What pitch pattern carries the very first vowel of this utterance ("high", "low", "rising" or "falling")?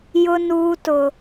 high